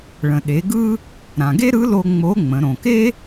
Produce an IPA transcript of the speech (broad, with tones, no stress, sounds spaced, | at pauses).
ɭ ə̃˩ ɗ e˩˧ ɡ ɯ˥ | ɾ ã˩ ɡ e˥ ɾ ɯ˧˥ l o˧ ŋ͡m o˧˥ ŋ͡m ə̃˩˧ ɾ õ˩ k e˥